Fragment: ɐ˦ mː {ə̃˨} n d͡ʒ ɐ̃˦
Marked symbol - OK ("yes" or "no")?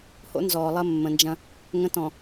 yes